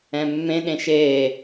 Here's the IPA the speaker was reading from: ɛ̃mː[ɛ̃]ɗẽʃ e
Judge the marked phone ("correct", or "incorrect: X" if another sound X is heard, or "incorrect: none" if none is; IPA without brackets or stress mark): incorrect: ẽ